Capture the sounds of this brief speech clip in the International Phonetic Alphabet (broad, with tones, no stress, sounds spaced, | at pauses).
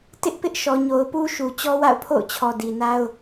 t ɪ˦ ʔ p ɪ˦ ʔ ʃ ɔ˨ ɲ o˨ ʊ̯ p u˦ ʃ u˨ t͡ɕ ɔ˦ w a̰˦˨ ʊ̯ pʰ o̰˦˨ ʊ̯ t͡ɕʰ ɔ˨ d i˨ n a˦ ʊ̯